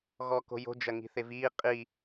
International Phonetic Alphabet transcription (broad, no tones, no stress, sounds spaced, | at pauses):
ɣ ɔ k o̤ j o̤ d͡ʒ ɐ ŋ i̤ θ e v iː qʼ i